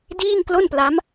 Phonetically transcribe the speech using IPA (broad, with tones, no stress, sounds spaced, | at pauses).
d iː˥˩ ŋ k l o˥˩ n p l a˦˥ m